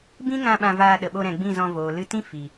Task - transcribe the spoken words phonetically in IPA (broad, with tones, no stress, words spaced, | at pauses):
bĩ˦ŋã˧ ɓã˧vaː˧ɗə˨ɓo˧ ɾɛ̃˨ɡ͡bĩ˦˨zɔ̃˧ voː˨lɨ˧tĩ˦ fi˨